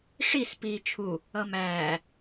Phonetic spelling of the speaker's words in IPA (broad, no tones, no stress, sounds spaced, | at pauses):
ʂ i s p iː t͡ʃʰ u | ʌ m æː